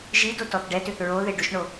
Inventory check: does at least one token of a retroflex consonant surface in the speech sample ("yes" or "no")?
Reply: yes